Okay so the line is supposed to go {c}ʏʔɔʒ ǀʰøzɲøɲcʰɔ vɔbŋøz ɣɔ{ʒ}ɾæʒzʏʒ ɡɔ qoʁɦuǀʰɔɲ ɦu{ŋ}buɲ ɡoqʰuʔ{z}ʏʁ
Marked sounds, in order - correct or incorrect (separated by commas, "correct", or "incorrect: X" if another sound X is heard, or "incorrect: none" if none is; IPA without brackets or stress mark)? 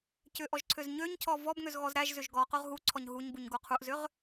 correct, incorrect: z, incorrect: ɲ, correct